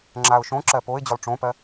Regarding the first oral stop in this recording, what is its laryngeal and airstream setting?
click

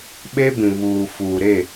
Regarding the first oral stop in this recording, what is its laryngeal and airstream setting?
implosive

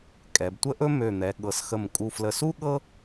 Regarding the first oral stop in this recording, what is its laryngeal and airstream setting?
ejective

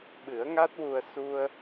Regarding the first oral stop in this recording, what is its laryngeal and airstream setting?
implosive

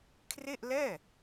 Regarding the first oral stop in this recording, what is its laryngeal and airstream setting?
aspirated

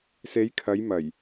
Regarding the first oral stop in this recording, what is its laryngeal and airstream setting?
aspirated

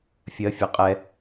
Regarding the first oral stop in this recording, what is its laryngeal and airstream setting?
ejective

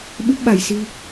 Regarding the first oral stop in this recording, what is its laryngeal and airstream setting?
implosive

